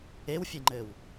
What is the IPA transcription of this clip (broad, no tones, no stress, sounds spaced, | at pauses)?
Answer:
e w fʲ e ŋ͡ǃ ɘ w